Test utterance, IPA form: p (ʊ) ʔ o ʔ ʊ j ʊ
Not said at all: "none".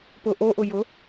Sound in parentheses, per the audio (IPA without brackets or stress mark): ʊ